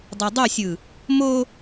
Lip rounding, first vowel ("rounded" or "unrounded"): unrounded